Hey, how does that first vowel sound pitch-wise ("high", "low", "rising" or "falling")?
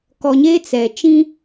low